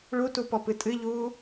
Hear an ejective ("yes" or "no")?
yes